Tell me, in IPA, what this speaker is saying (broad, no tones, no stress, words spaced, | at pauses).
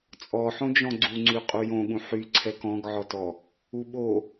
t͡sʼɔħõd͡ʒɔ̃ ɡ͡ǀuŋ͡ǀy qʼujõɠũ ħy ǀʰɛkɔ̃ɡʕɔtɔ | uɓo